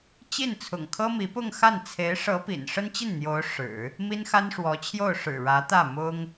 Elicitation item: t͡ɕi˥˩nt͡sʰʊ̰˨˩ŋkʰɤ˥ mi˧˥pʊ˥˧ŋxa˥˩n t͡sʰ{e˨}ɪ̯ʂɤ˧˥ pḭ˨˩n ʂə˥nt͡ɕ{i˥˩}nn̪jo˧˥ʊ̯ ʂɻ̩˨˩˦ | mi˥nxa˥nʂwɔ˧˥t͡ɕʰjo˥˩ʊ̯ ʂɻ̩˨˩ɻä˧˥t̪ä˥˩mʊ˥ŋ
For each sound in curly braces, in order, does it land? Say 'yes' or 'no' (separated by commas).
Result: no, yes